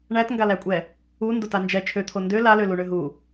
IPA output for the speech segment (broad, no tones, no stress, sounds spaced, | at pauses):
ɳ æ t ŋ ɡ a l æ kʷʼ ɛ | u n d o t a n d͡ʒ ɛ t͡ʃʰ ø t̪ʰ o n d ø l a l ø l u ɳ ø ɦ u